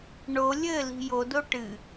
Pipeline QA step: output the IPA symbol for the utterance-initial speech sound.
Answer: ɳ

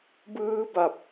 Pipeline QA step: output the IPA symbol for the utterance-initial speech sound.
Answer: b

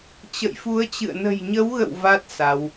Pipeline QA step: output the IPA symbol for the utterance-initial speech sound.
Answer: t͡ɕ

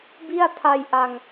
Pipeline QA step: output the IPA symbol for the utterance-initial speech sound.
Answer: b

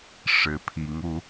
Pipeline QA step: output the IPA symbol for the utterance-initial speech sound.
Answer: ʂ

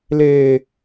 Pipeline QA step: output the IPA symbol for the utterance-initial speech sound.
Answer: l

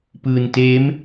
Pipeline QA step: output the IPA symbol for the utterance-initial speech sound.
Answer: p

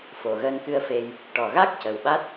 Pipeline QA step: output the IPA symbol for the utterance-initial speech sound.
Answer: f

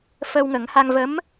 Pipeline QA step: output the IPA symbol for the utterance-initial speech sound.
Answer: f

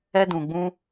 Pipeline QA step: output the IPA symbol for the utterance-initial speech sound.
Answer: ɛ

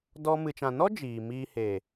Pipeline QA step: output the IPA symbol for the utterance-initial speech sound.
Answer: d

